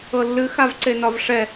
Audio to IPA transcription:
ɤlːɨxav ǀenɒvʂɛ

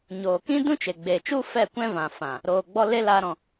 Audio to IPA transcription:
ɲoː˨kĩ˦dũ˦t͡ʃe˨ ɡ͡beː˨t͡ʃu˦ fɛ˦˨kʷɛ̃˦vã˨fã˨ | ɾoː˨ɡ͡bɔ˧ le˦ laː˧ɾɔ̃˨

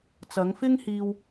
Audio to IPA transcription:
t͡sɐ˨˧ŋfɪ˥ŋhiː˧w

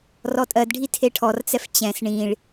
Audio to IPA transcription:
rɔtʼɜdɖʱi tʰeʈʰɔrt͡sɛf t͡ɕɛ̃s ɳĩɭ

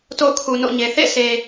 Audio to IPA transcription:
to̰˦˨ʊ̯kʰu˨no̰˦˨ɲe˨ θḛ˦˨se˨

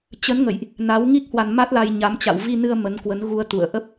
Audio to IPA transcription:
t͡ɕə˨˦nŋə̰˧˨jʔ | na˨˦wŋi˦˥k̚ hwa˧nma˦˥t̚ la˧jɲa˨˦m t͡ɕa̰˧˨wvi˧nɨ˧ə̯ mə˨˦nkwə˨˦nɣu˧ə̯ t̪ṵ˧˨ə̯ʔə˦˥p̚

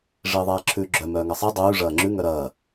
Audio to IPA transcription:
ʐiːðˤɛːǁʰʉːɡ͡ǁœ mœːŋɐsˤi dˤʉː ʐɐːŋ͡ǁʉ ŋœɾɐː

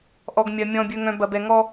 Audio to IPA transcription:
ʔɔ˨ɡmʲɐ˨ mʲɔ̃˨bʲɵ˨ŋœ̃˨ bɐ˨bɛ˨ŋɔ˦

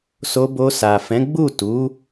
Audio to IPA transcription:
so˧bo˧sa˨ fɛ̃˨˦ɡ͡bu˦˨tu˨˦

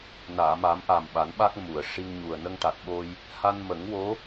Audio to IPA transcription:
naː˨˩˨ma˨˩˦m ʔa˨˩mɓa˨˩˦nɓa˦˥k̚ mu˨˩˨ə̯ ʂi˧ŋɲu˨˩ə̯ nə˧ŋʈa˨˩t̚ ɓo˧j | ha˧nmə˨˩˦ŋwo˧˥

